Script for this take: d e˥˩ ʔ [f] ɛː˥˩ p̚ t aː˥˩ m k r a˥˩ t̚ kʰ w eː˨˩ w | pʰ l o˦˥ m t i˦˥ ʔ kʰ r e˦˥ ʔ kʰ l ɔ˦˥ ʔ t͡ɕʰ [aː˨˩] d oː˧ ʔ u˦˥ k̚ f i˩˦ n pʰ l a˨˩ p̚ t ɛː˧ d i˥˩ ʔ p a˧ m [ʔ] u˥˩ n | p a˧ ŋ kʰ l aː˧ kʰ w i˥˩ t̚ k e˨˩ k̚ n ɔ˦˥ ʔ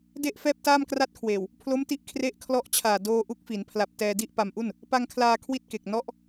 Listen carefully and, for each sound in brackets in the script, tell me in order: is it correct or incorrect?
correct, correct, correct

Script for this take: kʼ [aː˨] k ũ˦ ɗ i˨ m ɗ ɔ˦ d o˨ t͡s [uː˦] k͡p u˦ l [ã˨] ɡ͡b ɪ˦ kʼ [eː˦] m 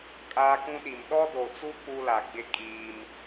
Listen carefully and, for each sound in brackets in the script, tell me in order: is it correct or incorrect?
incorrect: aː˦, incorrect: u˦, incorrect: a˨, incorrect: iː˦

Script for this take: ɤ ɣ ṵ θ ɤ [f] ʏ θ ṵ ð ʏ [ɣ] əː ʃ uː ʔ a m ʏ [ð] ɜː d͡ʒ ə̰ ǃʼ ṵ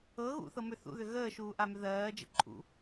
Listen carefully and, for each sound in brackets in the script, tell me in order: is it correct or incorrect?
incorrect: m, correct, correct

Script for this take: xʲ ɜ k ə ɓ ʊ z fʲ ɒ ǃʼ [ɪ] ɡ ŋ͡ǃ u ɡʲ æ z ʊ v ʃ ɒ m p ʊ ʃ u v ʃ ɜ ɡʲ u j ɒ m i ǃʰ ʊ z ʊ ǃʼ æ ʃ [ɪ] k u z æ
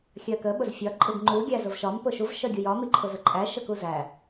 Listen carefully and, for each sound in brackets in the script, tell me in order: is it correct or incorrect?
correct, incorrect: ə

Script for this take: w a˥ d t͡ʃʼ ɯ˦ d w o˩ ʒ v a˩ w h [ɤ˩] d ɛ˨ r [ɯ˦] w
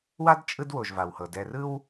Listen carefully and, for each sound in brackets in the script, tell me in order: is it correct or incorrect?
correct, correct

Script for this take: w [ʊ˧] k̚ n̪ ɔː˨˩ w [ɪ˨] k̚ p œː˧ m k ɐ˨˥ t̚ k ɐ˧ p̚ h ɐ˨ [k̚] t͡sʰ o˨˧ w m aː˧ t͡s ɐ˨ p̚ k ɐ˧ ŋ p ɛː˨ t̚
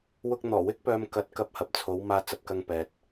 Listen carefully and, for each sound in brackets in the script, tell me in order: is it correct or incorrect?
correct, incorrect: ɪ˥, incorrect: p̚

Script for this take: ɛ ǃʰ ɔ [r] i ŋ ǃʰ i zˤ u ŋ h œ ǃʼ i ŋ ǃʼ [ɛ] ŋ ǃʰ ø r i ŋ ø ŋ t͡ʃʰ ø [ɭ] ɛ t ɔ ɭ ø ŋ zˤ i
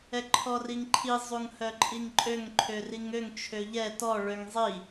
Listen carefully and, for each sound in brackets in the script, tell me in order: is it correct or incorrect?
correct, incorrect: ø, incorrect: ʎ

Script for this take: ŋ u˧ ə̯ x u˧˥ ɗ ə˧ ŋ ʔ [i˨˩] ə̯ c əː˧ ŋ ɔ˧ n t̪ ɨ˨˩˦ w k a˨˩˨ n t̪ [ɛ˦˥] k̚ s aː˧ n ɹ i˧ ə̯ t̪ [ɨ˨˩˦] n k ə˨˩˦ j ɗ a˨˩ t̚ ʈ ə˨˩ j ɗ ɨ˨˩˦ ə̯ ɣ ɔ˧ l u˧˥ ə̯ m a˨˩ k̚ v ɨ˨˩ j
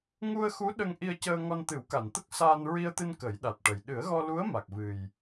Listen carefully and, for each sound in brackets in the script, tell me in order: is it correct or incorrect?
incorrect: i˧, incorrect: ə˦˥, incorrect: ɨ˧

